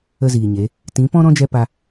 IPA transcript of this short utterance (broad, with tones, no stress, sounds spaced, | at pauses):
ə˦ z iː˨ ɲ e˨˦ | t ĩ˨˦ p ɔ̃˦ ɾ ɔ̃˦ d͡ʒ ɛ˧ p a˧